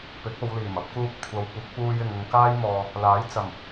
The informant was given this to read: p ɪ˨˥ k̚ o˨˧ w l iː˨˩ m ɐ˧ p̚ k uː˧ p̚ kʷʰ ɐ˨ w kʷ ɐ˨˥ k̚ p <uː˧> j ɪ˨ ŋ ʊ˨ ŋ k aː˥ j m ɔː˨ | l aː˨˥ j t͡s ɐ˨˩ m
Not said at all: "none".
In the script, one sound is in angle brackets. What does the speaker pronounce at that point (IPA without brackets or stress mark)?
uː˧